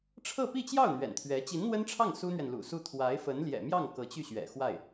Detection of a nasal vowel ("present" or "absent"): absent